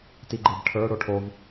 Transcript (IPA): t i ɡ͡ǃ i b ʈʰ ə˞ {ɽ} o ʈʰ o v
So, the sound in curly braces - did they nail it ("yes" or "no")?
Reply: yes